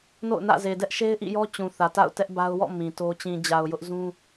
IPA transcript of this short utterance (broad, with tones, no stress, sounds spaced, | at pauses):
n o̰˦˨ ʊ̯ n ä̰˦˨ z e˨ d ɛ˦ ʔ ʃ e˦ ɪ̯ ʔ ḭ˦˨ j ɔ˦ t͡ɕ ũ˨ θ ä˨ t a̰˦˨ ʊ̯ t ɛ˦ ʔ b a˦ ʊ̯ w ɔ̰˦˨ m ĩ˨ t o˦ t͡ɕ ĩ˨ d͡ʑ a˨ ʊ̯ j ʊ˦ ʔ z ũ˦